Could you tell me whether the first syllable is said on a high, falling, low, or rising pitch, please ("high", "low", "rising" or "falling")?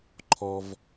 low